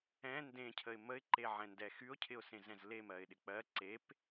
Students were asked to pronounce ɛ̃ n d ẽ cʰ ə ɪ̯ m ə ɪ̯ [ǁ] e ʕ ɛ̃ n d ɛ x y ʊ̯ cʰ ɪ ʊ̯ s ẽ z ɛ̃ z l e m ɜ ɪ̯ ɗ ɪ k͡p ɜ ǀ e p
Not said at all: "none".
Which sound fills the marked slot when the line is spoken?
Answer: ǃ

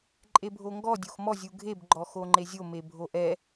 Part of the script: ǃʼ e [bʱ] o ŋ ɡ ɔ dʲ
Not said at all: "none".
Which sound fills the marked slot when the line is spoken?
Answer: bʱ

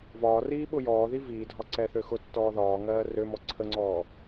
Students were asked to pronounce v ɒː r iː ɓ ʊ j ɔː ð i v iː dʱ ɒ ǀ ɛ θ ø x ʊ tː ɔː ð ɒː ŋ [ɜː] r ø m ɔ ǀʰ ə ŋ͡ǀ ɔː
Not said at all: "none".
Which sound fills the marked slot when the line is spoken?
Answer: ɜː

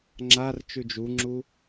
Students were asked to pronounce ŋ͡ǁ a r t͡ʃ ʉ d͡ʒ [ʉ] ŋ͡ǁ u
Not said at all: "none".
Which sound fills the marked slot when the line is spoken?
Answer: u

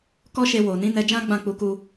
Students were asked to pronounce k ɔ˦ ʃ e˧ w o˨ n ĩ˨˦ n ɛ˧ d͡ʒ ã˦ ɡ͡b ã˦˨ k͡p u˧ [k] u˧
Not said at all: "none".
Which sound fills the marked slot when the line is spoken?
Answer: k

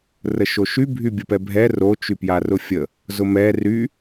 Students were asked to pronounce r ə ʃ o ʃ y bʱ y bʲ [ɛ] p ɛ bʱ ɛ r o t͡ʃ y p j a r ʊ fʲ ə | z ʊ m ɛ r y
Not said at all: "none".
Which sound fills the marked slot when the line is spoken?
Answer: ə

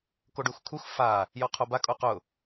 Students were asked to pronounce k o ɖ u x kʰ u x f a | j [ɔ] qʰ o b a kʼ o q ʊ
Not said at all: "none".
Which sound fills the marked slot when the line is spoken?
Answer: ɔ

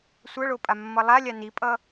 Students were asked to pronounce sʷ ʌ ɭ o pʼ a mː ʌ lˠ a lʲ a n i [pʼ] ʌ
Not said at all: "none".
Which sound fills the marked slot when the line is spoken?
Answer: pʼ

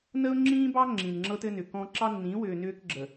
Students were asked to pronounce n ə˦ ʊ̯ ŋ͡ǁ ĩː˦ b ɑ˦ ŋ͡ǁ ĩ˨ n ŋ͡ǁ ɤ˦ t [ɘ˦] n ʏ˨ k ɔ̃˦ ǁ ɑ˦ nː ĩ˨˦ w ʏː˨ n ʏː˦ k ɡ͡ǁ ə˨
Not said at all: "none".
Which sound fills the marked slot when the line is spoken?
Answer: ɘ˦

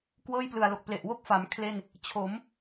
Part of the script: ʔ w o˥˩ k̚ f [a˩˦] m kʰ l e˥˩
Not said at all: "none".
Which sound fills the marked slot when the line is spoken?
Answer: a˩˦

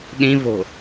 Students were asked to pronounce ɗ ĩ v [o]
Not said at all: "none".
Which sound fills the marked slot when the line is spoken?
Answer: o̤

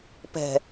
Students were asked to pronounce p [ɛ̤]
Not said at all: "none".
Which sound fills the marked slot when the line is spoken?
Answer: ɛ̤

